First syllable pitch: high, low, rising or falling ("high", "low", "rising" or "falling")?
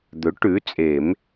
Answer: rising